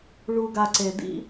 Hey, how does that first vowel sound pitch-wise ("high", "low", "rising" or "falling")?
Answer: low